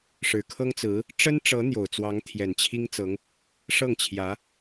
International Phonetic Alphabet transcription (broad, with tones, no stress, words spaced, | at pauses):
ʂɻ̩˨˩kʰɤ˥ŋt͡sɹ̩˧˥ | ʈ͡ʂə˥nʈ͡ʂɤ˧˥ n̪jo˨˩ʊ̯t͡swɑ˧˥ŋt̪ʰjɛ˨˩n t͡ɕʰi˥ŋt͡sɤ˧˥ŋ | ʂɤ˥˩ŋt͡ɕʰjä˧˥